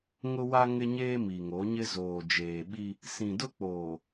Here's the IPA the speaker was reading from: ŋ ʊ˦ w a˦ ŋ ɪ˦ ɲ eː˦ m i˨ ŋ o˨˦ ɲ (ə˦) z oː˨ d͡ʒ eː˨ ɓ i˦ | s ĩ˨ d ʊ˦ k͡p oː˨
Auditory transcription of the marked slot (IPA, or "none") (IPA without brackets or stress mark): ɪ˦